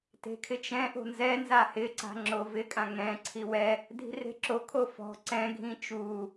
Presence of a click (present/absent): present